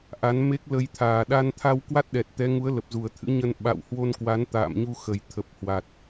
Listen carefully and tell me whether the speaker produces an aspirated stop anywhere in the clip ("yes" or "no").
yes